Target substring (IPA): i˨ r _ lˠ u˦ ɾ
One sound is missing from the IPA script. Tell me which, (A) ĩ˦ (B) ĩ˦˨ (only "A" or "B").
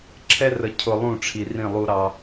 B